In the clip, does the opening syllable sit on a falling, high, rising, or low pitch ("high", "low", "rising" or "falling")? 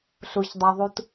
low